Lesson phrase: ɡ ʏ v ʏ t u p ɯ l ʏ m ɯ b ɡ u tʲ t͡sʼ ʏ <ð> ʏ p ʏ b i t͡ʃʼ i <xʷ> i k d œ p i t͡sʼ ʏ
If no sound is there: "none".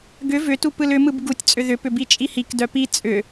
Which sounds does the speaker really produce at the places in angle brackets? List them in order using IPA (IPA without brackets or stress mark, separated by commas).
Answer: ð, h